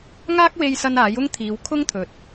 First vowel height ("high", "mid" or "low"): low